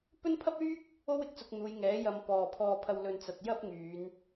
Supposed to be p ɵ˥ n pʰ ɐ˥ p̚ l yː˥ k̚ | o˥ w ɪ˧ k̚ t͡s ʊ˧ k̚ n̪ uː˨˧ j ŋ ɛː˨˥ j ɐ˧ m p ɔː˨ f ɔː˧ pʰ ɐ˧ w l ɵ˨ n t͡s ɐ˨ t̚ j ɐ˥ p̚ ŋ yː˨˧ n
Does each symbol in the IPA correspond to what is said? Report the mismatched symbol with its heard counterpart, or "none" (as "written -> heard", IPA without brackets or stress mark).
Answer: f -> pʰ